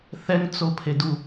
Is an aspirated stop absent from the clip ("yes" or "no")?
no